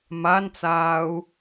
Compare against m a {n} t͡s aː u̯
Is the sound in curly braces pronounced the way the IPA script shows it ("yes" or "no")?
yes